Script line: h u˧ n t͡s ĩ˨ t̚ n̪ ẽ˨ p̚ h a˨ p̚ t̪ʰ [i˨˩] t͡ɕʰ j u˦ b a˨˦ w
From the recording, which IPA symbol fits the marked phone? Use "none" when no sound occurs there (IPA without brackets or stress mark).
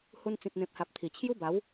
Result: i˨˩